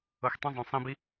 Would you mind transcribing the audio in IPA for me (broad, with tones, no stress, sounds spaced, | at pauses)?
ɤ˨ x tˤ ẽ˧ zˤ õ˨ sˤ ĩ˧ b i˦